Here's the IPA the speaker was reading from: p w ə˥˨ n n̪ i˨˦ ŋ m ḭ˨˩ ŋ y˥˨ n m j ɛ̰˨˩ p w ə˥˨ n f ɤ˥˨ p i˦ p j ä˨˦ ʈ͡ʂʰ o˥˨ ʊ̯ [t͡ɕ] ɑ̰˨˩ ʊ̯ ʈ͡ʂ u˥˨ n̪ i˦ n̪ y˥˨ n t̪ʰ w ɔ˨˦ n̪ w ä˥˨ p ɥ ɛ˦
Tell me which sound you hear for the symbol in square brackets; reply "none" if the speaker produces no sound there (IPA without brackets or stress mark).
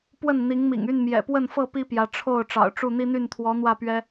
ʈ͡ʂ